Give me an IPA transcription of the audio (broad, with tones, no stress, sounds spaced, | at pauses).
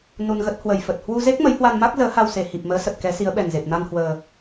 n u˧ n ɣ ə˦˥ t̚ h w ə˨˩ j f ə˨˩ t̚ h w u˧ z e˦˥ k̚ m ə˨˦ j h w a˧ n m a˦˥ k̚ z əː˨˦ h a˧ w s e˨˩ h i˨˩ p̚ m əː˨˦ s ə˨˩ t̚ k ɛ˨˦ s i˨˦ ə̯ ɓ ɛ˨˩ n z e˨˩ p̚ n a˧ n h w əː˨˩